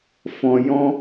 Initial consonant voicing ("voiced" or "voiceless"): voiceless